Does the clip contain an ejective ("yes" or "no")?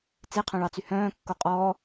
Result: yes